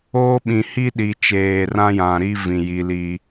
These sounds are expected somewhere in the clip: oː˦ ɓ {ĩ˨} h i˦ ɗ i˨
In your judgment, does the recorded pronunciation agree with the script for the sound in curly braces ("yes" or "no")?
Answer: yes